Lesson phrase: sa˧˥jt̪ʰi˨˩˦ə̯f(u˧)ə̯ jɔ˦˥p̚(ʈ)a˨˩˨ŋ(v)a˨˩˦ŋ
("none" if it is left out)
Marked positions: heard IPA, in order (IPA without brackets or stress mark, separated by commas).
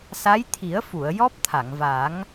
u˨˩˨, t̪ʰ, v